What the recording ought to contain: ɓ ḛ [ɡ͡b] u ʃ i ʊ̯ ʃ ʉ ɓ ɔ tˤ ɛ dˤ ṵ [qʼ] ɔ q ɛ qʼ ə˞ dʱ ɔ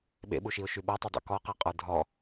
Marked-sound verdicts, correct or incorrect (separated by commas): incorrect, incorrect